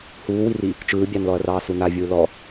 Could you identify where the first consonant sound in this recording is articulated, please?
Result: glottal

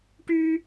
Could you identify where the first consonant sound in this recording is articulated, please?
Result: retroflex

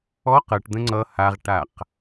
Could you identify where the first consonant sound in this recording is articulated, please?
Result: uvular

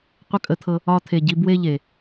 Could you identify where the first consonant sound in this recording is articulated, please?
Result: uvular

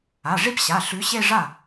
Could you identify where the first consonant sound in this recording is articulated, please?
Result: retroflex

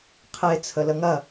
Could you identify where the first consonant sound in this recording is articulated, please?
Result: uvular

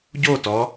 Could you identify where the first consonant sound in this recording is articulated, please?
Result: palatal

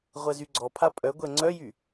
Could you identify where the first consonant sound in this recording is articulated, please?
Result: uvular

